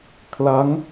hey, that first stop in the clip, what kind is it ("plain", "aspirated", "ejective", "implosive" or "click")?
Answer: aspirated